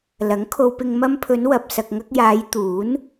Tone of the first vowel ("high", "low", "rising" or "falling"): rising